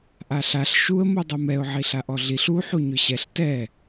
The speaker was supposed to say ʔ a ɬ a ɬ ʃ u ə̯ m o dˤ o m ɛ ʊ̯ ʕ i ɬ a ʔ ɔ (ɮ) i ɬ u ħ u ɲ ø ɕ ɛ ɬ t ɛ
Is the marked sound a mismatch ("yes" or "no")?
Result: no